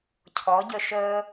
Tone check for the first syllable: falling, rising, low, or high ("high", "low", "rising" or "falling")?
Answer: rising